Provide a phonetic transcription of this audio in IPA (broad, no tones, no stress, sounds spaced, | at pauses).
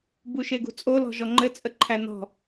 b u ʃ e ɡ ṳ t͡sʼ o l ɔ̤ ʒ ɔ ŋ͡ǃ ɘ t͡sʼ ə ǃʰ æ n ɔ̤